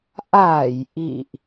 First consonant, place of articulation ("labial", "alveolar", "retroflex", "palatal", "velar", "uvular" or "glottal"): glottal